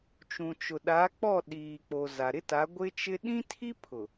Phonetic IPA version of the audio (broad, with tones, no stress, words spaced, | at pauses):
t͡ʃũ˨t͡ʃʊ˨ɗa˨˦k͡pɔ˦˨ ɗiː˨k͡po˨ za˨ ɾɪ˦ta˨˦ ɡʷɪ˦t͡ʃɪ˦ ɗĩ˦tʰi˦ pʰʊ˨